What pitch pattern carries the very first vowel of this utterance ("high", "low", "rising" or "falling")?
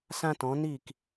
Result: high